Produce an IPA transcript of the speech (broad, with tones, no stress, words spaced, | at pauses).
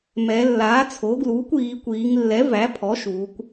mɛ˩˧ lːaː˩˥t͡sʰo˩˥ɡluː˩˥kʷ iː˩˧kʷiː˩˧ŋlːɛ˩˥ væ˩˥pʰɔ˩˥ ʃuː˩˧kʷ